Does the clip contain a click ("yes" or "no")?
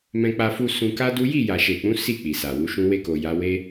no